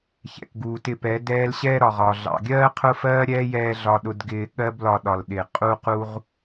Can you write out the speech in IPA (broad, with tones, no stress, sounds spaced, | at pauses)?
ç ɛ̰˨ k ɡ uː˨ t ɪ˧ p ɛ˨˦ d ɛː˦ l ɕ ɛː˦ ɾ ɒ˨ ʁ ɒː˨ ɮ ɑ̰˨ ɡʲ ɜː˦ qʰ ʊ˦ f ɜː˦ ɾʲ ɛː˦ j ɛː˧ ɮ ɒ˧ ɗ ʊ˧ d ɡ ɪː˧ ɠ ɜ˦ b l ɒ˧ ɗ ɒ˨ l ɗ ɪ˨ qʼ u˦ q u˦ ʁ